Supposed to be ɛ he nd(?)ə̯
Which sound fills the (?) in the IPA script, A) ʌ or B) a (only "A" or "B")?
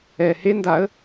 B